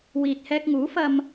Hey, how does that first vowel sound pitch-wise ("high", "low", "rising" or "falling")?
low